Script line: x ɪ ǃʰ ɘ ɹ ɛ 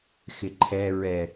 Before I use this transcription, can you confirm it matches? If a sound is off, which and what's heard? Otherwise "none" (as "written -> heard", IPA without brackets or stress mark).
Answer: ɘ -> ɛ